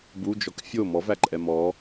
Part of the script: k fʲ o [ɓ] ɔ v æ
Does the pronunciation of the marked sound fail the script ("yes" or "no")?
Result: yes